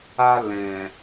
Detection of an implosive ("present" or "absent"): absent